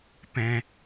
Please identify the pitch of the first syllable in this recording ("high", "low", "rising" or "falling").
high